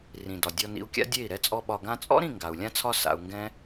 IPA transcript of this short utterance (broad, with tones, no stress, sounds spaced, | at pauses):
r ĩ˨ d ɒ˨ dʲ ɔ˧ n ḭ˧ u̯ kʲ a̰˦ dʲ e˦˨ i̯ ɾ ɛ˧ t͡sʼ ɔ˧ ɓ ɒ˨ ɡ ã˧ t͡sʼ ɔ̰˦ ɾ ĩ˦˨ ŋ ɡ a˨ u̯ lʲ ã˦ t͡sʰ ɒ˦ s a̰˧ u̯ ŋ ɡ ɛ̃˦